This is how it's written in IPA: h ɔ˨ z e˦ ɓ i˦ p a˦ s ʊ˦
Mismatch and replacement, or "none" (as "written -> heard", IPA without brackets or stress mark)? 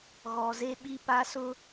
h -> ɣ